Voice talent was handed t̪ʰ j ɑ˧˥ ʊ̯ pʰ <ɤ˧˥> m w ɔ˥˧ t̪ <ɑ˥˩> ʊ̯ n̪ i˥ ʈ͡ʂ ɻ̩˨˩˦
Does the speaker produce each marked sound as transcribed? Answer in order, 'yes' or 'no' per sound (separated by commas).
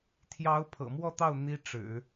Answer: no, yes